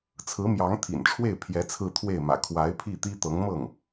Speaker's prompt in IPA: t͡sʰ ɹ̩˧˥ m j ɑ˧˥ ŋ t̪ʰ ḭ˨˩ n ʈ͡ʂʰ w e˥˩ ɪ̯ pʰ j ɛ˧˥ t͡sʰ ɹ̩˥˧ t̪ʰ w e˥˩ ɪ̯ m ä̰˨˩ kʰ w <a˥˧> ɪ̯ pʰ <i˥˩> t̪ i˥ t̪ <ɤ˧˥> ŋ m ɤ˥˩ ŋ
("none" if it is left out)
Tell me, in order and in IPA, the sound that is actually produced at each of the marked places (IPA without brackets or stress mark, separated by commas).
a˧˥, i˥˩, ɤ˧˥